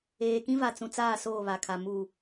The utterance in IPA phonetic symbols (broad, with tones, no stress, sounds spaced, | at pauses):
eː˨ k ĩ˦ v a˨ t͡s ũ˨ t͡s aː˦˨ s oː˦˨ β a˨ kʰ a˨ m uː˨